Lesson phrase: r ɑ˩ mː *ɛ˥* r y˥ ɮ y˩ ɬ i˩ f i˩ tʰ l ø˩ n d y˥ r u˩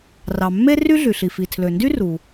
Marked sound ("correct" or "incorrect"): incorrect